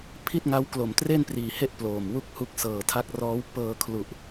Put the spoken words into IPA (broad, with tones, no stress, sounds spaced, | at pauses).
pʰ i˥˩ t̚ ŋ a˦˥ w k l o˨˩ m t r e˥˩ n p r iː˨˩ h e˥˩ ʔ p l oː˨˩ m w u˥˩ k̚ h u˥˩ k̚ s ɤː˨˩ tʰ a˦˥ k̚ r ɔː˦˥ w p ɤː˧ kʰ l u˨˩ ʔ